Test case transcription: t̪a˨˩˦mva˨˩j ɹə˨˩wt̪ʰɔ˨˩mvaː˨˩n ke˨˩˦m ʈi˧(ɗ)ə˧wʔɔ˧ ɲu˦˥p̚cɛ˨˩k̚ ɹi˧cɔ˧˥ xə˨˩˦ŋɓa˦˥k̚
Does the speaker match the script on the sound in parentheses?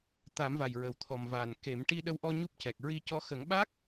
yes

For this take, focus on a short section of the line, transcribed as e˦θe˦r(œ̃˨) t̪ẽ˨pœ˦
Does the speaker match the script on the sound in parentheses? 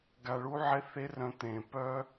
no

